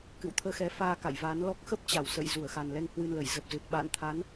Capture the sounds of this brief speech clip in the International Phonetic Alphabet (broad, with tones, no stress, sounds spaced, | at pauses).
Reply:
k ɨ̰˧˨ w t̪ʰ əː˧ x ɛ˨˦ f aː˧ k a̰˧˨ j v aː˨˦ n l ɔ˦˥ k̚ x ə˦˥ p̚ t͡ɕ a˧˩ w s ə̰˧˨ j z u˧˩ ə̯ x a˨˩ n l ɛ˧ ŋ h w ɨ˧ n l ə˧˩ j z ə˨˩ p̚ z ɨ˨˩ t̚ ɓ a̰ː˧˨ n t̪ʰ a˨˦ n